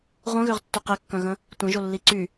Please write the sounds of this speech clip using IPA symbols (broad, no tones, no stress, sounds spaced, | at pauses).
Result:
ʁʷ œ̃ ɣ ø ʁ tː ø q e kː œ̃ ɣ ə̃ | tʷ ẽ ʒ o lː i ǀ y